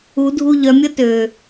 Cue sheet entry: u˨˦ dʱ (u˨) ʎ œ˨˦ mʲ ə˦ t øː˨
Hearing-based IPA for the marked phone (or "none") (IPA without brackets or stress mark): u˧